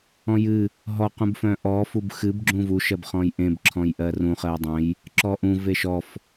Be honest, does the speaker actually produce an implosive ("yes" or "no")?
no